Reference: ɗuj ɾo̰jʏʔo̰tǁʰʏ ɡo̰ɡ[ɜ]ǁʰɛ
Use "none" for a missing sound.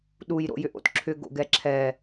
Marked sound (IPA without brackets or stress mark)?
ɛ